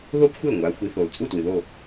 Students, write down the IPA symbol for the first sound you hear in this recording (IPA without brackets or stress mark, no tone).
ð